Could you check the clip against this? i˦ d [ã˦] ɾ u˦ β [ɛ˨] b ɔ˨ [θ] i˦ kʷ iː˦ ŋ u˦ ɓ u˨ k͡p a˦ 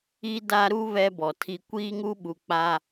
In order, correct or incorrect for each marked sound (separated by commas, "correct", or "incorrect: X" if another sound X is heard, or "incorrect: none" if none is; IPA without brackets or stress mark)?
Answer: incorrect: a˦, incorrect: ɛ˦, incorrect: tʰ